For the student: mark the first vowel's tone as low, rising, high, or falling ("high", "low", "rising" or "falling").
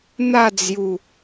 falling